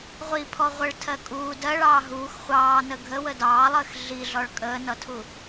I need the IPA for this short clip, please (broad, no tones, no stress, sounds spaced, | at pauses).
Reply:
ʁʷ i pʰ ɔ ʁʷ ə ɭ tʰ ɜ kʼ uː d ɜ ɭ ɑː ɦ uː x χʷ ɑː n ə ɡʱ ə w ə d ɑː lˠ əː x ɮ i ɮ ɔ ɭ kʼ əː n ʌ tʰ u